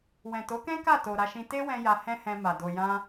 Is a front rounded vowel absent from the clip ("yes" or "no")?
yes